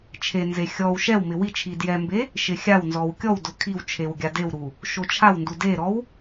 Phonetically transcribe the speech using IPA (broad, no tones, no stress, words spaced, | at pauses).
t͡ʃʰenze xʲɔw ʃɛwmɪ wi t͡ʃʰidjɛmbe | ʃɪxʲawnzɔw kʲɔwdʊ kʰiw t͡ʃʰewɡʲadewɾu | ʃot͡ʃʰawndu deɾɔw